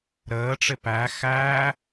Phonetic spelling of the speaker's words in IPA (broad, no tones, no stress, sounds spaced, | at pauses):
ɾ əː ʈ͡ʂ ɪ p æ x æː